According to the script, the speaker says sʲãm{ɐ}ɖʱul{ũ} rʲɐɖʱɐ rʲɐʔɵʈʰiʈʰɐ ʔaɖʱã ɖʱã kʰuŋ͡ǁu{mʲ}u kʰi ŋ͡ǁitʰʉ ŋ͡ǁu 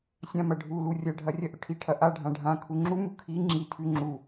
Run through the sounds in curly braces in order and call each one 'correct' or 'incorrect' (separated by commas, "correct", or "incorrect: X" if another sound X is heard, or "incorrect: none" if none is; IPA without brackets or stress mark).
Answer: correct, incorrect: u, incorrect: m